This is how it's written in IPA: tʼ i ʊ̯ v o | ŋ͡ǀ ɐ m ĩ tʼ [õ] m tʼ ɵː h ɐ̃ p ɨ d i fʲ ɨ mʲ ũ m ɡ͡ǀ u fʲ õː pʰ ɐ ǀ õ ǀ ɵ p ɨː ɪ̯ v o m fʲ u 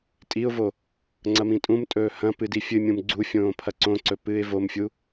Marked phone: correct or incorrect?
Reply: incorrect